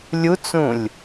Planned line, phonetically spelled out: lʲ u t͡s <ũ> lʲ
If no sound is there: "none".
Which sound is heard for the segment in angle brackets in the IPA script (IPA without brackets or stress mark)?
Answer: ũ